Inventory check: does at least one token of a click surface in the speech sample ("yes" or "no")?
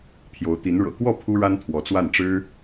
no